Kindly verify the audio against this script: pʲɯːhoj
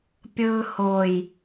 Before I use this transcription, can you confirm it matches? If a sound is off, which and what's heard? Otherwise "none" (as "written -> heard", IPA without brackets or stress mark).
none